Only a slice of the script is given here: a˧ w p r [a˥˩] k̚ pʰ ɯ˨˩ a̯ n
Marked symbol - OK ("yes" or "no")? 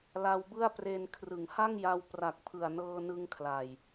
no